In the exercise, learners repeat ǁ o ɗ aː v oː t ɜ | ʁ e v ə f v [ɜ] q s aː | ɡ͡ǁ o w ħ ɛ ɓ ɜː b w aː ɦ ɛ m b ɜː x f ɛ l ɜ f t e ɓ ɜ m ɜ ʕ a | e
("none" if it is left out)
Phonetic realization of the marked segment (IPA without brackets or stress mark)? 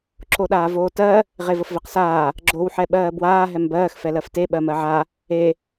ɛ